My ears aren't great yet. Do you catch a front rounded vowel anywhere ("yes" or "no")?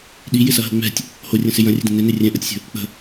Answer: no